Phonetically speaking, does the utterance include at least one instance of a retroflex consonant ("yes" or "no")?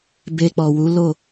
no